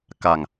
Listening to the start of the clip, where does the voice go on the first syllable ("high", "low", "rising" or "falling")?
low